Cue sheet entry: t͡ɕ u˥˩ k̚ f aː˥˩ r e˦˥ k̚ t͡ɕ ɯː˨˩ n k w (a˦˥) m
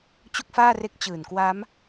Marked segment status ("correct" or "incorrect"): correct